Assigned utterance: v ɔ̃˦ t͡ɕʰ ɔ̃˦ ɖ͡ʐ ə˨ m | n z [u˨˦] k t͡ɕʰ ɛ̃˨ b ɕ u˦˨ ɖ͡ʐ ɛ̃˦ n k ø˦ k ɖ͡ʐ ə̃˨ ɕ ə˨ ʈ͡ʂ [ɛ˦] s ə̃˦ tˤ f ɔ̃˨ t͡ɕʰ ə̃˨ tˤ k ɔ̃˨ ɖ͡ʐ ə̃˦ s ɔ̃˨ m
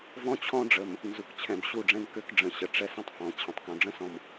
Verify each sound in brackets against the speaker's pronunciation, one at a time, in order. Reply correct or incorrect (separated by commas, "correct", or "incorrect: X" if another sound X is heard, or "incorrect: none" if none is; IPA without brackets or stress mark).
incorrect: u˨, correct